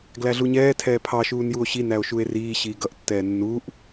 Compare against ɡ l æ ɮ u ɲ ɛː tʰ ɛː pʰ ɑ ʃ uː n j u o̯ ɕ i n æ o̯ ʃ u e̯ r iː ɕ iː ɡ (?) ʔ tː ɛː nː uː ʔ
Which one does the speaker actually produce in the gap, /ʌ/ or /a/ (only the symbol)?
ʌ